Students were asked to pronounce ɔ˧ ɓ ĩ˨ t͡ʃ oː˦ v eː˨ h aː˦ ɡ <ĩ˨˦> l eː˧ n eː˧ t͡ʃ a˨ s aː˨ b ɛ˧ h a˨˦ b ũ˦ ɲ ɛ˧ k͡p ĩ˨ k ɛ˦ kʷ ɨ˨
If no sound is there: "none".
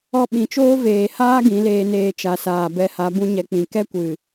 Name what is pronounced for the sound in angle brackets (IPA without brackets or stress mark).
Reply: ĩ˨˦